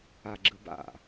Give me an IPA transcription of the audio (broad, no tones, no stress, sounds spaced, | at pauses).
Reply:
a ɡ͡ǁ ɯ b a̰